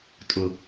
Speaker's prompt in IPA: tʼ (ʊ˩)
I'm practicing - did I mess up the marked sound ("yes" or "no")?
no